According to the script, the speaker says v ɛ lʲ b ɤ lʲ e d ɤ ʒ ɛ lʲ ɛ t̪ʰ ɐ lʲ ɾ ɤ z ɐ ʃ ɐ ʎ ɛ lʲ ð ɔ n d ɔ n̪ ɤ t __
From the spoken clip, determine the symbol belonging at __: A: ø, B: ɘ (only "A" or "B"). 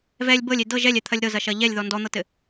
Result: B